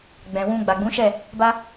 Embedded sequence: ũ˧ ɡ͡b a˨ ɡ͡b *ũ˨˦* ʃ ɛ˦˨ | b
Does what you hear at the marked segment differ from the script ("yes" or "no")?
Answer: no